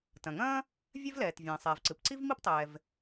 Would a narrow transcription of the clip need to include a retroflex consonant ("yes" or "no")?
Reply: no